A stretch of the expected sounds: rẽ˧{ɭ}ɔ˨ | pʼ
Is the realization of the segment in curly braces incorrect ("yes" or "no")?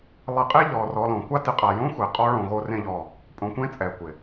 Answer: yes